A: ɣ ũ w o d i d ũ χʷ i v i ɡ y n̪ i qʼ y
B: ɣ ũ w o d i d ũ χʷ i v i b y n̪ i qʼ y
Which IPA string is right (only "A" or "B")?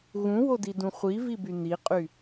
B